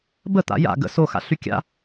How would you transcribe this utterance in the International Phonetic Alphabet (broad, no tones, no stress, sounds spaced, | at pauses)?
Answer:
b ə t̪ a̰ j a̰ ɡ ə̰ s o x a̰ ɬ y kʲ a̰